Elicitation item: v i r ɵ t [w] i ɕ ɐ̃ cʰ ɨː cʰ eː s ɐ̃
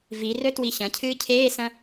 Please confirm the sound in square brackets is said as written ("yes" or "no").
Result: yes